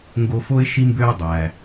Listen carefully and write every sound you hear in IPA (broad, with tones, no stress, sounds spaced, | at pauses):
ŋ ɡ o˧ f o˥ ɪ̯ ʃ i˥ m b ø˥ ʊ̯ dˤ æ˩